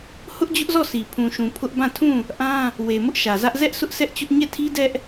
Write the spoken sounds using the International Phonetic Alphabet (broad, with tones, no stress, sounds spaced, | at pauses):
h ʊ˦ ʔ d͡ʑ ʊ˦ ʔ z ɔ˦˨ sʰ i˨ pʰ ũ˨ ʃ ũ˨ pʰ ʊ˦ ʔ b ã˦˨ tʰ ũ˦˨ | ʔ ã˦ | w e˨ m ʊ˦ ʔ ʃ ä˨ z ä˦ ʔ z ɛ˦ ʔ s ʊ˦ ʔ sʰ ɛ˦ ʔ t͡ɕ ʊ˦ ʔ ɲ ɛ˦˨ tʰ i˦ d ɛ˦ ʔ